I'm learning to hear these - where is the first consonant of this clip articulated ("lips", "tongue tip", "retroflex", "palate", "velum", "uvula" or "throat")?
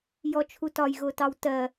palate